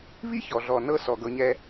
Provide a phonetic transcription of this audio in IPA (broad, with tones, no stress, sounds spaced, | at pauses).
β i˥ ç ɔ˩ ɮ ɔ˩ n ɤ˥ s ɔ˩ ɡ ɤ˨ ɲ ɛ˦